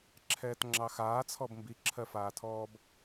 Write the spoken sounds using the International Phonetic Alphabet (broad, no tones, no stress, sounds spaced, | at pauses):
ǁʰ ɛː t ŋ͡ǁ ɑ x aː t͡sʰ ɔ b m b i ǁʰ ɜ f aː tʰ ɔː b